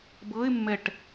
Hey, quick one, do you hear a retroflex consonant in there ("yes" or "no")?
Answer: yes